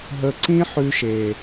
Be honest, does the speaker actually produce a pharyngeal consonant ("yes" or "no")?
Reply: yes